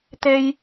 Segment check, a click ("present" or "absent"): absent